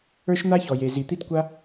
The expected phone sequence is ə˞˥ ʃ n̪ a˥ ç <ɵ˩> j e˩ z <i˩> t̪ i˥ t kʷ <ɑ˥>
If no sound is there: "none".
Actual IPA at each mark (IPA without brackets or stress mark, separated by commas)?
ɔ˩, i˩, a˥